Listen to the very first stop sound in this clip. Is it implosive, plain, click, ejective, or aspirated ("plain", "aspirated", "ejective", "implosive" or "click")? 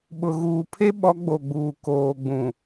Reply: implosive